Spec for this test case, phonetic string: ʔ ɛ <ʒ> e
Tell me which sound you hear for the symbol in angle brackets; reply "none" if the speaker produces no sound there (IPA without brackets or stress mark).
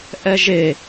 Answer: ʒ